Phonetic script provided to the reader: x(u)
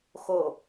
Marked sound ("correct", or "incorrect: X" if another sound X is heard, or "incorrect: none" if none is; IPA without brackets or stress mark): incorrect: o